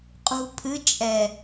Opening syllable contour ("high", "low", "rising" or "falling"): low